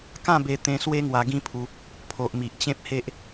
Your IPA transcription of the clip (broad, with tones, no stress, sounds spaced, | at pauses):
k ã˥˧ b e˧ t̪ ẽ˧ s w e˦ ŋ w a˧ ɡ ĩ˦ pʰ u˧ | pʰ o˨ ʔ m i˨ ʔ t͡ɕ ẽ˦ p̚ h e˦ ʔ